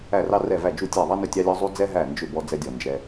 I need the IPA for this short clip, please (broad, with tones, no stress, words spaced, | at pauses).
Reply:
æ˧˩rɑ˧ rɛ˧˩væ˧˩ d͡ʒu˧˩tʲæ˧˩ðˤɑ˧nʏ˧˩ tʲɑ˧lʲɔ˧ zˤu˧ d͡zɛ˧ɦæ˧˩nd͡ʒʏ˧˩ bɔ˧d͡zɛ˧dʲɔ˧˩nd͡ʒɛ˧